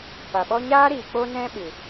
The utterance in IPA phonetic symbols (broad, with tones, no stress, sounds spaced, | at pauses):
p a˨ ɓ ɔ˦ ɲ aː˦ ɾ iː˨ k͡p o˦ n ɛ̃˦ ɓ ɨ˨